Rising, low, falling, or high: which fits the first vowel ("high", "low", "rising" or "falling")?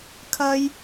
high